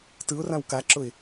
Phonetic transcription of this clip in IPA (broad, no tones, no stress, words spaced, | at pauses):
tɯʊ̯rãw kaǁʊɪ̯